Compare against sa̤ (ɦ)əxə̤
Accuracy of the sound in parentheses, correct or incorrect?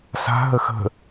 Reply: correct